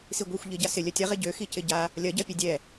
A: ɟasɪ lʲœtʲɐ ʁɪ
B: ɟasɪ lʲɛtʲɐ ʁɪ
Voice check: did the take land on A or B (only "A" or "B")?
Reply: A